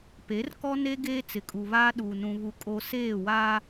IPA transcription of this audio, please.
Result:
p e˨˦ r k ɔ˦ n e˦ ɡ eː˦ t͡s ɪ˨ kʼ u˨ β aː˦ ɗ uː˨ n ũ˨ β u˨ kʼ o˨ s eː˦˨ w aː˦

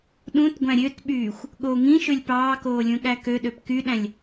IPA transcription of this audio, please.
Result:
ɗ ũ t ɡʷ æ̃ ɾʲ ø t ɓ yː xʷ | ɠ o ŋ ĩ ʃ ø lʲ p ɑː k oː lʲ ũ ɠ æ k ø ɗ ø p k y ɗ æ̃ lʲ

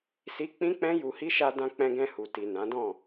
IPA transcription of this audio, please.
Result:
s i˦ k͡p ĩ˦ k͡p ɛ̃˦ j u˧ h i˦ ʃ a˧ d ã˧ k͡p ɛ̃˧ ɡ ɛ̃˧ h u˨ t i˨ n ã˨˦ d ɔ̃˦˨

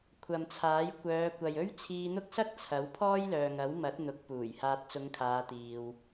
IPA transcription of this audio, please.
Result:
kʷʰ ɐ˨ m t͡sʰ aː˨˥ j kʷ œː˨˧ kʷ ɐ˨ j ɵ˥ ɥ t͡sʰ iː˧ n̪ ʊ˥ k̚ s ɐ˥ k̚ t͡sʰ ɐ˨˥ w pʰ ɔː˥ j l œː˨ ŋ ɐ˨˥ w m ɐ˨˥ t̚ n̪ ʊ˨˥ k̚ p uː˨˩ j h aː˨ t̚ t͡s ʊ˨˧ ŋ kʰ aː˨˧ t̪ iː˧ w

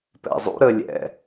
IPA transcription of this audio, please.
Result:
p ɛ̰ zˤ ṵ ɾ ə lʲ ɛ̰

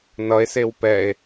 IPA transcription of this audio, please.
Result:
n ʌ e̯ s e w p ɛ e̯

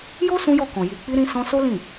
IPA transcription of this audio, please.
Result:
j o˦ s ũ˦ j ɔ˦˨ k ɔ̃˨ j i˨ k͡p i˧ ɾ ĩ˧ s ɔ̃˧ s o˦ l ĩ˦˨

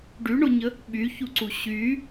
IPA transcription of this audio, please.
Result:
ɖ y ɳ o ɲ ə | ɓ y ç u ǀ u ɕ y

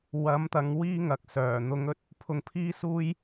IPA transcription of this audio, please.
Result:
w ɐ˨˥ m t̪ ɐ˨˧ ŋ w iː˥ ŋ ɐ˨ k̚ s œː˨˩ n̪ ʊ˨˧ ŋ ɵ˥ t̚ | pʰ ʊ˧ ŋ pʰ iː˥ s uː˥ j

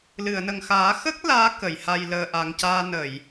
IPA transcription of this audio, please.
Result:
l ɨ˨˩˨ ə̯ n ə˨˩ ŋ x aː˨˩˦ x ə˦˥ k̚ l aː˧˥ k ə˨˩˨ j h a˧ j l əː˧ ʔ a˨˩ ŋ c aː˧ n ə˨˩˨ j

